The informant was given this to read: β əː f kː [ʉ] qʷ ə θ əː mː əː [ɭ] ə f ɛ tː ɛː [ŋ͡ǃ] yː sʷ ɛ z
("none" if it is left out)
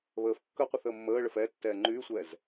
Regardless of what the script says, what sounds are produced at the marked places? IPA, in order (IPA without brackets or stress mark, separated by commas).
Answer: ə, ɭ, ŋ͡ǃ